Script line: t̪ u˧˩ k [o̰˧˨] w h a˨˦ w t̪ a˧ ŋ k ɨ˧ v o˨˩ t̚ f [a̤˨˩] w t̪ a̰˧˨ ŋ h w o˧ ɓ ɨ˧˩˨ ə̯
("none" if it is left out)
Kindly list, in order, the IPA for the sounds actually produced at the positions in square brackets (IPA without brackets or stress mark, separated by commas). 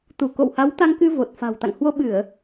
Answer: o̰˧˨, a̤˨˩